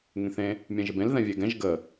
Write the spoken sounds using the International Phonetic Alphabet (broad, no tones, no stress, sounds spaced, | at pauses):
ŋ ẽ θ ẽ | mʲ ɛ̃ ʒ ɪ b ẽ l ð ɛ̃ vʲ e ɡ ɛ̃ ʒ ɡ ə